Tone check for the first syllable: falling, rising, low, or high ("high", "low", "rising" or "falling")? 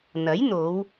rising